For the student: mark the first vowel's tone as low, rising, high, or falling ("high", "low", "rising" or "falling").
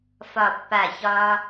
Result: falling